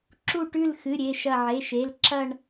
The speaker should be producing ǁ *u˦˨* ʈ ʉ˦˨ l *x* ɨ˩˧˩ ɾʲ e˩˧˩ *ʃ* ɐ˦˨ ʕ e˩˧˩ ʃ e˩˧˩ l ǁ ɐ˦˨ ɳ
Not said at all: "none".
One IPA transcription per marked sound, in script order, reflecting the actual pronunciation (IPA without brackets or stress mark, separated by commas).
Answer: u˦˨, x, ʃ